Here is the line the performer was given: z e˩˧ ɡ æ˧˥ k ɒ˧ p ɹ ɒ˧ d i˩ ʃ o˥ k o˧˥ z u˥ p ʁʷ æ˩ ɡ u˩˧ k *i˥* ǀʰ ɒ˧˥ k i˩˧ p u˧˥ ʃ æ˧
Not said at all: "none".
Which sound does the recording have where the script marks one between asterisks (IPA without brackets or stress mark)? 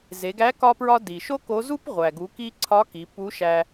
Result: i˧